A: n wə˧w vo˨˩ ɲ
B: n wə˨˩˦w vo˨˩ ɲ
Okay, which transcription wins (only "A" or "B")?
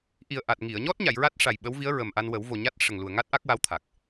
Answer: B